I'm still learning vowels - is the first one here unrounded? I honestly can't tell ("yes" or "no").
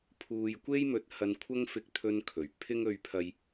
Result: no